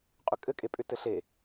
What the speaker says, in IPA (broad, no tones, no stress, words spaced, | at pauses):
qʼʏkʼɘkʼepʼʏ tɘɬe